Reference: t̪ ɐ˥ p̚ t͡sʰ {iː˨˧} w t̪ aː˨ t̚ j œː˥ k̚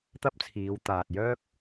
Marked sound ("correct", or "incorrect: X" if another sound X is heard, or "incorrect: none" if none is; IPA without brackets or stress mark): correct